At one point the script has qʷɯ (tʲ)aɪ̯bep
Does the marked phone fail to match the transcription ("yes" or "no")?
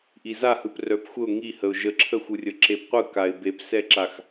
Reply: yes